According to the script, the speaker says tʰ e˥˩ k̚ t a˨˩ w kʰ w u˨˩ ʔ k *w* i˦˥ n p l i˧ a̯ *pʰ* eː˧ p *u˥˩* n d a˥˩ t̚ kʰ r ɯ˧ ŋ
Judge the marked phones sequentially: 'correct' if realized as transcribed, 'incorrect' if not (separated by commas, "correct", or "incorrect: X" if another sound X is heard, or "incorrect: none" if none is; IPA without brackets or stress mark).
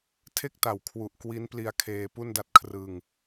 correct, incorrect: kʰ, correct